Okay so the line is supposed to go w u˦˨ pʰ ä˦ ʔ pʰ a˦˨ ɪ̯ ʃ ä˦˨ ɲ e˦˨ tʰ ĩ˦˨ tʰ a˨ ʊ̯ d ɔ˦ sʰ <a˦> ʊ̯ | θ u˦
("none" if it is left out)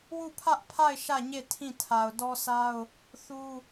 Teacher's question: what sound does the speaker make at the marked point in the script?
a˦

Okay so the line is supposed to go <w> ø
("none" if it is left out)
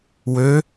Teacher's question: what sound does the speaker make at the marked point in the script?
w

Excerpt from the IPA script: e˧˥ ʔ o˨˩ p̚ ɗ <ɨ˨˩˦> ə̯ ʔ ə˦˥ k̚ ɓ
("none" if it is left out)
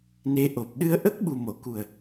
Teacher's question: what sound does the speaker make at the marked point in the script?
ɨ˧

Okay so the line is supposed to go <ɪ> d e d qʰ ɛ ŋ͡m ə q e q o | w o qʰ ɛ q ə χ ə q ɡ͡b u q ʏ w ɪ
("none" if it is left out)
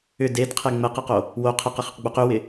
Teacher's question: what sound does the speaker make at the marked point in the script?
ʏ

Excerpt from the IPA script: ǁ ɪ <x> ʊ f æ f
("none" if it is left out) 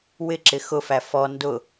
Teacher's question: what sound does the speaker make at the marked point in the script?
x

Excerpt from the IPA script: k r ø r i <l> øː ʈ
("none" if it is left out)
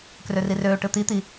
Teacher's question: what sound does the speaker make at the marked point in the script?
r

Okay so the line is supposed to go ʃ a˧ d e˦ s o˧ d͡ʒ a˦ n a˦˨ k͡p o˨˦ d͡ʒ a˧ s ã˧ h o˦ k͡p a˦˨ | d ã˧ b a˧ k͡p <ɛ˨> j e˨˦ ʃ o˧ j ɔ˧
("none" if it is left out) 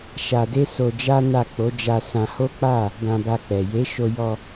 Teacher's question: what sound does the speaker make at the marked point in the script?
ɛ˨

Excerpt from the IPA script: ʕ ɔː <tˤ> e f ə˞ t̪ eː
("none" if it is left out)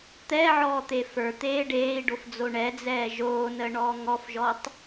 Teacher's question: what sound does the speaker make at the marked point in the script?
t̪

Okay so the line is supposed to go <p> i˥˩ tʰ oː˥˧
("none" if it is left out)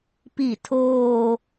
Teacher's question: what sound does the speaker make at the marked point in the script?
p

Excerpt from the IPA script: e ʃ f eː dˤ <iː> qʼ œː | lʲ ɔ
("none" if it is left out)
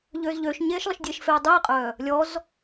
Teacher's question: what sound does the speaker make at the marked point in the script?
iː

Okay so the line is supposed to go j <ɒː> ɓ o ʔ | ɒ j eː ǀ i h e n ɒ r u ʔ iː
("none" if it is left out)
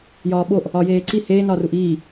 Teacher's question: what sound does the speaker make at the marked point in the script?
ɒː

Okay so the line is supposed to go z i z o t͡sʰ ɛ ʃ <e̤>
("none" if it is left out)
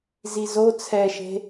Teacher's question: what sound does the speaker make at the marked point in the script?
e̤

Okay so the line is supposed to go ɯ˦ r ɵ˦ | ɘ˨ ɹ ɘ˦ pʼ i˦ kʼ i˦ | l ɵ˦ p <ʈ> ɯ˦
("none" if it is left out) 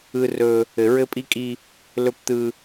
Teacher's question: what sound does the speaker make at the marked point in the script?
t̪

